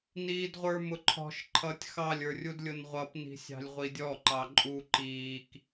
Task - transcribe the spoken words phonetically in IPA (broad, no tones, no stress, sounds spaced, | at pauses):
n iː d ʁʷ ə˞ m ʊ ǃʰ ɔ̤ ʃ ǃʰ ʌː tʲ x ɑ lʲ ə˞ rʲ u d lʲ ʊ n ʁʷ ʌ p n i̤ sʲ ɑ̤ lʲ ʁʷ i dʲ ɔ ǃ ɑ ǃʼ u ǃ iː k